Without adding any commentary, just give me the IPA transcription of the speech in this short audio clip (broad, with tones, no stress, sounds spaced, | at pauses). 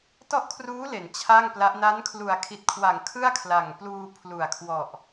t ɔ˥˩ ʔ kʰ r uː˦˥ l e˩˦ n t͡ɕʰ a˥˩ ŋ p l a˦˥ ʔ n a˦˥ n kʰ l u˨˩ a̯ kʰ i˨˩ t̚ kʰ w a˨˩ ŋ kʰ ɯ˥˩ a̯ kʰ l a˨˩ ŋ p l uː˧ pʰ l u˨˩ a̯ kʰ w ɔ˨˩ ʔ